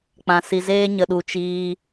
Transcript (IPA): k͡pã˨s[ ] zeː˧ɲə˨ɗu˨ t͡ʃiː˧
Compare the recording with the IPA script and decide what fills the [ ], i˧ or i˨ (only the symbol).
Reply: i˨